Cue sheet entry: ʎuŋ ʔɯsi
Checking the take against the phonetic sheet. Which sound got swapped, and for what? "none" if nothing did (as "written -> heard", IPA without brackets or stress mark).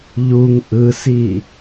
none